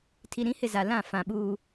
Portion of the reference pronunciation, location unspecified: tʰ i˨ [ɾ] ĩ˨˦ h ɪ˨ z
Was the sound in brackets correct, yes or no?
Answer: yes